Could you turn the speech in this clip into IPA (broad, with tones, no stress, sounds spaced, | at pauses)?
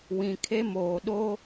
w ĩ˨ kʰ e˦ m oː˨ ɗ o˦